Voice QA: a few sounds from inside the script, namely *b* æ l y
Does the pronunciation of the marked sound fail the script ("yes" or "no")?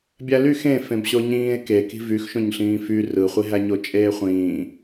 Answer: yes